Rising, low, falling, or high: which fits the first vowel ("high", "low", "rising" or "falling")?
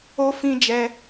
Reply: high